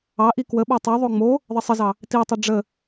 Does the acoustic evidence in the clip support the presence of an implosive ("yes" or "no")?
yes